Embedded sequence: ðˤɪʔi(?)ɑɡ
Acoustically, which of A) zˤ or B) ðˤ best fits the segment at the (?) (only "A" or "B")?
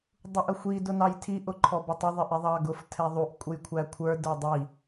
B